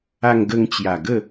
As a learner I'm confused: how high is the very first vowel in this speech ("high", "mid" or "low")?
low